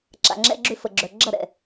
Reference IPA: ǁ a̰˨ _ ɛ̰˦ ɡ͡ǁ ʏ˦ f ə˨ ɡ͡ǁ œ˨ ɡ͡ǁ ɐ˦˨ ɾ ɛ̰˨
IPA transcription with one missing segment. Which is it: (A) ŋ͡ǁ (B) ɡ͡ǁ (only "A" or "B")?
A